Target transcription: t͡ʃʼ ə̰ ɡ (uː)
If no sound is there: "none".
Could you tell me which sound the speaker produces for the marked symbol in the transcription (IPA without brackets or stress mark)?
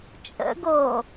oː